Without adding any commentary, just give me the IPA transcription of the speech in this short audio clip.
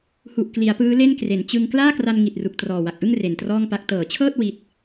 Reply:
h u˨˩ ʔ k l i˩˦ a̯ p ɯː˦˥ l e˥˩ n k r e˩˦ n t͡ɕ ɯ˧ ŋ k l aː˥˩ k r a˧ n ŋ i˨˩ t̚ r u˨˩ k̚ t r ɔː˨˩ w a˨˩ k̚ ʔ ɯ˥˩ ŋ r e˨˩ n t r ɔː˥˩ ŋ p a˦˥ k̚ t ɤː˩˦ t͡ɕʰ ɤː˥˩ t̚ w i˦˥ t̚

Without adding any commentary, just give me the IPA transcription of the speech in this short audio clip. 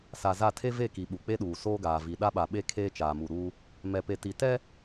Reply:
s a˨ z a˦˨ tʰ e˦ v e˦˨ k i˨ ɓ u˨ k͡p e˦ ɗ uː˨ s oː˦ ɡ aː˨ v i˨ ɗ a˦ ɓ a˨ ɓ e˦ kʰ eː˦ t͡ʃ aː˨ m u˨ ɾ uː˦ | m ɛ˨ p e˨ t i˨ t ɛ˦

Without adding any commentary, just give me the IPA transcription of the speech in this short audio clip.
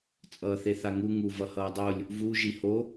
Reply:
t͡sʼ ʌː θ e θ a ŋ u ŋ u v ʌ h ʌː dˤ o lʲ | v u ʒ i h o

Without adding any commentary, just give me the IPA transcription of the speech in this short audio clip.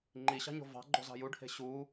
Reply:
ŋ͡ǃ i ɕ ɑ̤ ɲ o̤ v ɑ̤ ɡ͡ǃ o̤ z ɑ̤ j u ɖ h e̤ ɕ u

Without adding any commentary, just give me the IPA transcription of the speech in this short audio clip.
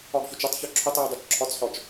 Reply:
ɒ ɡ ç o t͡ʃ ɘ tˤ ç ɔ ǁʰ ɵ tˤ j u dˤ o t͡ʃ ǁʰ ɒ t͡s ħ ɔ t͡ʃ

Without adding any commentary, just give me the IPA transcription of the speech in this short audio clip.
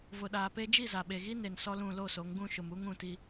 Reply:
v ʊ˨ ɗ aː˨ p e˦ d͡ʒ i˦˨ z a˨ ɓ e˨ ɣ i˦ n e˨ n s ɔ˦ l ũ˦˨ l o˦˨ s o˨˦ ŋ ɡ ũ˦˨ ʃ ʊ˨ m u˦ ŋ ũ˦˨ t i˦

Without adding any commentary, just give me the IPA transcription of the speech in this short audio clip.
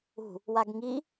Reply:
ṳ | w a ɡ ŋ i

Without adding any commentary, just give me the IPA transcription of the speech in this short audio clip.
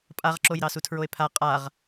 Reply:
pʼ a ʁ ǁ o j ɾ ɑ s u tʰ ɹ o e̯ pʰ a qʼ a ʁ

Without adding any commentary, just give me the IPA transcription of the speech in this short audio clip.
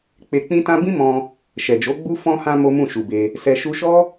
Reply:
k͡p e˧ k͡p ĩ˦ t ã˦ b ĩ˦ m ɔ̃˧ | ʃ ɛ˨ d͡ʒ o˨˦ ɡ͡b u˦ f ɔ̃˧ h ã˧ m o˦ m ũ˦˨ ʃ u˨ b e˧ | s ɛ˨ ʃ u˧ ʃ ɔ˦

